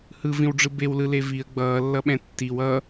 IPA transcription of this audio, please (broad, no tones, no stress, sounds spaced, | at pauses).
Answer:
h ɯ v ĩ w ɖ͡ʐ ɯ b e w l ɯ l e v i ə̯ ɡ͡b ʌː lː ʌ ɓ ɛ̃ tː i w ʌ